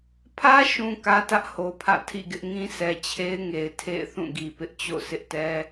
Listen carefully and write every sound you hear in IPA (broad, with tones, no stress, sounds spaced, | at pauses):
pʰ ä˦ ʃ ũ˨ k ä˦ t ä˦ ʔ h o˨ pʰ ä̰˦˨ tʰ ḭ˦˨ ɡ ɪ˦ ʔ ŋ ĩ˦ s ɛ˨ t͡ɕʰ e˦ ɪ̯ ŋ e˨ ɪ̯ tʰ ḛ˦˨ ɪ̯ θ ũ˦˨ ɡ i˨ p ɪ˦ ʔ t͡ɕ o̰˦˨ s ɪ˦ ʔ t ɛ˦